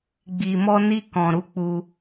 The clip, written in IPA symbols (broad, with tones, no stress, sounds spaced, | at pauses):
ɡ͡b i˨ m ɔ˧ n i˧ k ɔ̃˨ ɾ u˨˦ k͡p u˧